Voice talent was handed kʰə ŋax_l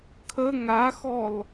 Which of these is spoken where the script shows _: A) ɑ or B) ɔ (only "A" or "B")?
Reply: B